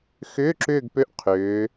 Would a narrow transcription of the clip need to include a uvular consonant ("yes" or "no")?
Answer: yes